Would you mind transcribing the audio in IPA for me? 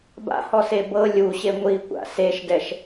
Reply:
ba̰hɔse bɤ lʲuɕe ŋʷikʷa̰ seʃdɛʃ

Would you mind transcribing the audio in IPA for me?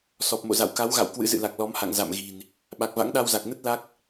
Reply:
sɔ˨˩p̚mo̰˧˨za̰˧˨w ka˨˦wɣa̰˧˨w kwɨ̰˧˥zɨ̰˧˨la˨˩k̚ lɔ˨˦mha̰˧˨ŋ za̰˧˨mɣi̤˨˩n | ɓa˨˩k̚va̰˧˥ŋɗa˧wza˨˩k̚ nə˦˥t̚ la˦˥k̚

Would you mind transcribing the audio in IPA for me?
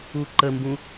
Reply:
uǃəmbũ

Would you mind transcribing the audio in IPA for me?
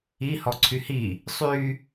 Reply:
i hɔǀʰyhi | sˤy

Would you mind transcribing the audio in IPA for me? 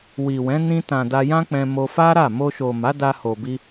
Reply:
wi˨wɛ̃˨˦ nĩ˧tã˨ da˧jã˦k͡pɛ̃˧ mo˧fa˦ɾa˦˨ mo˧ʃo˨ ma˨˦da˧ho˨bi˧

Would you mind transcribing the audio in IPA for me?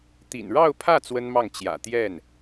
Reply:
t̪ḭ˨˩n ɻɑ˥˧ʊ̯pʰä˥˩ t͡swə˥nmɑ˥˩ŋ t͡ɕjä̰˨˩ t̪jɛ˥˩n

